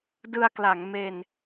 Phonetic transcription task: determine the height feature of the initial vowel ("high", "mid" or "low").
high